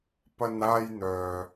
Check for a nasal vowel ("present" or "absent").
absent